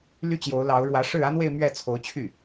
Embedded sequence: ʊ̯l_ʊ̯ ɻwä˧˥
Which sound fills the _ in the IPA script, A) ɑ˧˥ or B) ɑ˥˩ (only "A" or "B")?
A